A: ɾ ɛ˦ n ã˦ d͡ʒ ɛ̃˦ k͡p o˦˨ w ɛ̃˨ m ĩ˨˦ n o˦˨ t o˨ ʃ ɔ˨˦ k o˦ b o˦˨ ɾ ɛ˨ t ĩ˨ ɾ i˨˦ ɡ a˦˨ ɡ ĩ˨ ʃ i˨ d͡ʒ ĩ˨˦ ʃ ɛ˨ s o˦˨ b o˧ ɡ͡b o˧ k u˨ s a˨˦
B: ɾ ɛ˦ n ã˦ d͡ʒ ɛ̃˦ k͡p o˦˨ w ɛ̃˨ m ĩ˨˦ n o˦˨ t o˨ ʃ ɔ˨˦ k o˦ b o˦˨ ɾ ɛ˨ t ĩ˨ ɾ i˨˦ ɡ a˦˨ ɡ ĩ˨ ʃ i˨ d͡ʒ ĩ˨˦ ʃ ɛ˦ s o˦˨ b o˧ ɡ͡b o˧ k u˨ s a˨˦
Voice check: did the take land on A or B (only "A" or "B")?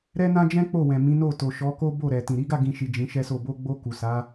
B